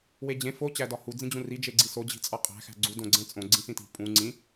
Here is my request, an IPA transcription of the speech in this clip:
w e d͡ʑ ẽ f o t͡ɕ æ d ɒ h u d͡z ĩ d͡ʑ ũ r i d͡ʒ e ɡ͡ǀ i s o d͡ʑ i̤ t͡sʼ ɒ qʼ æ̤ x æ̤ ɡ͡ǀ u d õ ɡ͡ǀ ẽ t͡sʼ õ ɡ͡ǀ ĩ s ĩ t i̤ pʼ ũ ŋ͡ǀ ĩ

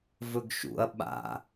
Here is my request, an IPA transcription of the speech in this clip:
v ɵ ɡ ʃ ṵ ɐ̯ ɓ a̰

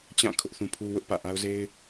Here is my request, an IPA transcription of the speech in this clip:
t͡ɕ ã˦˨ kʰ ʊ˦ ʔ θ ũ˦ pʰ u˦ w ʊ˦ ʔ p ä̰˦˨ ʔ a˦ ʊ̯ z e˦ ɪ̯

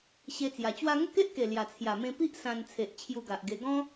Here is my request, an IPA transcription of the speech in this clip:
ɕ e˧ t͡s j a˨˩ t͡ɕ w a˦ ŋ ə˥˧ k e˦ ʔ k e˨˩ l j a˨˩ t͡sʰ j a˨˩ m ẽ˧ p i˦ ʔ s ã˧ n t͡sʰ e˨ ʔ t͡ɕʰ j u˧ ɡ a˨ ʔ ɡ e˧ ɡ ɔ̃˦

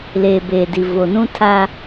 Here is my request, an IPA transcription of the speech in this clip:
l eː˨ b eː˨ d i˨ v o˨ n ũ˦ tʰ a˦

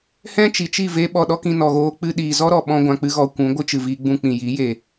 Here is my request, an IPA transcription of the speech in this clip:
h ɛ̃˦ t͡ʃ i˨ t͡ʃ i˦˨ v eː˦ ɓ ɔ˧ ɗ ɔ˦ k ĩ˧ n ɔ˨ ɣ oː˧ k͡p ɨ˧ ɗ iː˨ z ɔ˦ ɾ ɔ˨ ɓ ɔ̃˧ ɡʷ ã˨ k͡p ɨ˧ ɣ ɔ˨ kʷ ũ˨˦ ɡʷ ɨ˦ t͡ʃ ɨ˨ v i˧ ɡ͡b ũ˧ k͡p ĩ˨ j iː˨˦ j eː˨

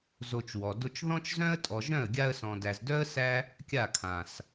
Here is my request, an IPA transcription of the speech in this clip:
z o˧ t͡ʃ w ɔ˨ d o˦ t͡ʃ ð ɔ̃˦ t͡ʃ z œ̃˦ ə̯ tʼ ɔ˨ ʒ œ̃˦˨ ə̯ ɡʲ a˧ ə̯ s ɔ̃˨ d æ˨ z d œ˦ ə̯ s æ˦ | kʲ a˦˨ kʰ ã˨ s

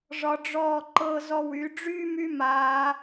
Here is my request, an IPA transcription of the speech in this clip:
ʐ ɒ˧ ɖ͡ʐ ɔː˧˩ ǃ ɤ˧ z ɔ˧˩ w y˩˧ ɖ͡ʐ yː˥ m y˥ m aː˩˧

